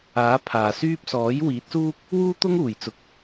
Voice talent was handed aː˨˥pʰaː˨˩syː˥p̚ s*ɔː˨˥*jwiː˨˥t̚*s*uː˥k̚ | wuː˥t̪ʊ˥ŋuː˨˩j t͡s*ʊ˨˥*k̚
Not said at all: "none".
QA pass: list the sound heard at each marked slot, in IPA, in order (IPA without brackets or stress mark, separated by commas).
ɔː˨˥, s, ʊ˨˥